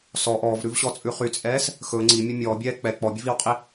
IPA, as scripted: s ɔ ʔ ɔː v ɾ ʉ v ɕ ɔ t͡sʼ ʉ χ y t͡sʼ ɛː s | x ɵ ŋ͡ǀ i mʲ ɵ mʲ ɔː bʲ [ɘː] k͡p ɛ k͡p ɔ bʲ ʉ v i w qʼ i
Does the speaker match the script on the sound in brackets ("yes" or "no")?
no